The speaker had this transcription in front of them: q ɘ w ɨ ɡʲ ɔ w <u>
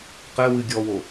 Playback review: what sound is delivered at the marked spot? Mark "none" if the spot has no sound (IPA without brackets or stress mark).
o